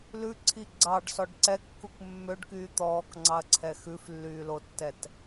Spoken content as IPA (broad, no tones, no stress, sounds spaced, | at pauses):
l ʉ ǀʰ i ɡ͡ǀ ɑ ɖ s ɔ ɖ ǀ ɛ kː u k mː ø ɖ k yː t̪ ɔː k ŋ͡ǀ ɑ ɐ̯ ǀʰ ɛ x ʉ f lː yː l o tː ɛ t